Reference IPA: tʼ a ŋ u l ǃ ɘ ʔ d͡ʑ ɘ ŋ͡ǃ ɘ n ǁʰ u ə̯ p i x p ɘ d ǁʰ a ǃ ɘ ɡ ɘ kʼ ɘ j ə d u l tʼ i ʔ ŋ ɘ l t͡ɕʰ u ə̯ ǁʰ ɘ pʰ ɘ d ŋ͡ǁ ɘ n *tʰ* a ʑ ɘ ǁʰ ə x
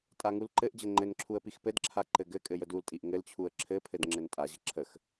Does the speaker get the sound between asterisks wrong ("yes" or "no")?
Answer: yes